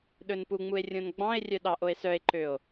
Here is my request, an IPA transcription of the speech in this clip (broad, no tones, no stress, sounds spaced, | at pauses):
ɗ ɵ n p u ŋ͡m u e̯ rʲ õ n ɡ͡b ɑ̃ e̯ rʲ œ ɗ ɑ ʔ o e̯ s œ e̯ ǃ ø o̯